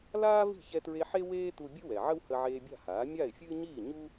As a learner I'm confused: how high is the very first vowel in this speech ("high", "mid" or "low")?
low